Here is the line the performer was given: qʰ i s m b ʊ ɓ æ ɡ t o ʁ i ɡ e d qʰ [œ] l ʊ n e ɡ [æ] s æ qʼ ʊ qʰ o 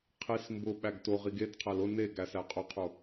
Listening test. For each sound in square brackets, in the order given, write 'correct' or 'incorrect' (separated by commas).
incorrect, correct